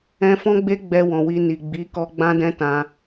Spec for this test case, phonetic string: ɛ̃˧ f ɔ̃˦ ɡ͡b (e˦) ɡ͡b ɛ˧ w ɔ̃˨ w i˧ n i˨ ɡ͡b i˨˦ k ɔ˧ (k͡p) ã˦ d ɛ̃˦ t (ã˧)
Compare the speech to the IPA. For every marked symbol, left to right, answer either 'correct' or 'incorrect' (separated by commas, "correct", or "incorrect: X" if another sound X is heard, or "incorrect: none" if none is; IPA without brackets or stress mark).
correct, incorrect: ɡ͡b, correct